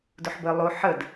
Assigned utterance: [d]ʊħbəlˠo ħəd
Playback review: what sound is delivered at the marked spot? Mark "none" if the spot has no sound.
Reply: d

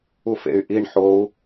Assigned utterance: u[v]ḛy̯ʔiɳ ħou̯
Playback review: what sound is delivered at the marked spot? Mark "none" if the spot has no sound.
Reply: f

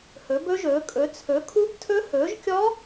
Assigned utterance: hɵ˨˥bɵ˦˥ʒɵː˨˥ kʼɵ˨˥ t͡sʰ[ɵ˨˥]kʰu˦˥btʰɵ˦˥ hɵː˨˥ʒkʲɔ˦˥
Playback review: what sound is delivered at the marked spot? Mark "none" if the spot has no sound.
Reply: ɵ˨˥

